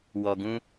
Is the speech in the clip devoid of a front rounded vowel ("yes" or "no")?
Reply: yes